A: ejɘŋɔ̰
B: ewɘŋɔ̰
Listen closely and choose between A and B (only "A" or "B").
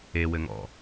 B